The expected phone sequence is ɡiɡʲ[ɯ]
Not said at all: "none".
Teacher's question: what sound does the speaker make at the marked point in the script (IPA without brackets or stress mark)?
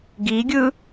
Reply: ɯ